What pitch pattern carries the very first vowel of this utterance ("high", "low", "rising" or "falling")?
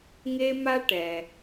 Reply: high